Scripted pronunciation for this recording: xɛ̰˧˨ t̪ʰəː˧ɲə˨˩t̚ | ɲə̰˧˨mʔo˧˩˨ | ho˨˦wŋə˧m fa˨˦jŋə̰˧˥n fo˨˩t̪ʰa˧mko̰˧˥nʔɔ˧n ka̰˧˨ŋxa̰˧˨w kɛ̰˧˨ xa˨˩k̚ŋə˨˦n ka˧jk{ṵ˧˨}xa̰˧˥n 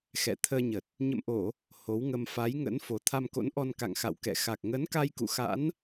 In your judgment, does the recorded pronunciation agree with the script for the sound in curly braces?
yes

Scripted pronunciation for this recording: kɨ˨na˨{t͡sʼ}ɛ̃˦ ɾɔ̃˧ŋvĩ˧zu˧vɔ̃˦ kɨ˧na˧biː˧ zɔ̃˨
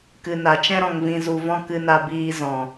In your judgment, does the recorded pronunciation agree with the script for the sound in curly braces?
no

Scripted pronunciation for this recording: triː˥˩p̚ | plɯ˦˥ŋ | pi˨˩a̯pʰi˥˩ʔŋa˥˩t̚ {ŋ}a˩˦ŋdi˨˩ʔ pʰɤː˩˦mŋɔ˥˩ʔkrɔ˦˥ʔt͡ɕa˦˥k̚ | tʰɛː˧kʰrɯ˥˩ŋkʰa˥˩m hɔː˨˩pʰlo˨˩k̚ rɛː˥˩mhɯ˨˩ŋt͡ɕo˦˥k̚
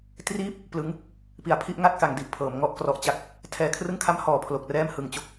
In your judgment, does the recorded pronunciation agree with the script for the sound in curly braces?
no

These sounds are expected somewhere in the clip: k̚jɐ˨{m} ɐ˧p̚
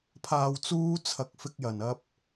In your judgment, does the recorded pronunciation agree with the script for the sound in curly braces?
no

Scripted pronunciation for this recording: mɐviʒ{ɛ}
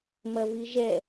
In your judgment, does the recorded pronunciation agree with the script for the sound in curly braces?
yes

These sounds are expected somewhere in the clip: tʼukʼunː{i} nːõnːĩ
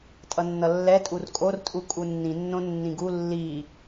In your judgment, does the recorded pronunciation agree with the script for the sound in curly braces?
no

